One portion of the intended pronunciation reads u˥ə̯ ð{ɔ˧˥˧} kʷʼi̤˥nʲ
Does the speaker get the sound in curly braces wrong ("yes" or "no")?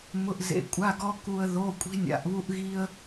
yes